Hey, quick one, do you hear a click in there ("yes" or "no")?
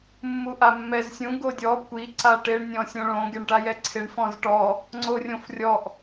yes